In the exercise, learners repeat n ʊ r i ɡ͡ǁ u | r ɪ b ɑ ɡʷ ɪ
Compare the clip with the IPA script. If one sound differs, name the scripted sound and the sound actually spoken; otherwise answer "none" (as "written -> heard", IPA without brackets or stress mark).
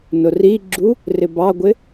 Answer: none